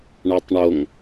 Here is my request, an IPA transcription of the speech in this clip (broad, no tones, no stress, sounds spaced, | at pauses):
ɳ a tˤ ɳ o ŋ